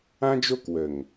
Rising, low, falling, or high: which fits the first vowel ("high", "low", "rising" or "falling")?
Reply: high